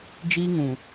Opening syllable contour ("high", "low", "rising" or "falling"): high